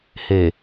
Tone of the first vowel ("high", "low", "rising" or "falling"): low